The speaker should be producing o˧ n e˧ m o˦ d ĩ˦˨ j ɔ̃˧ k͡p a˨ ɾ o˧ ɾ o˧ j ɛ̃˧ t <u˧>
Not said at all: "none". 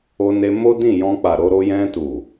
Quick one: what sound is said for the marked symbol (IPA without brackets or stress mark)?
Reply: u˨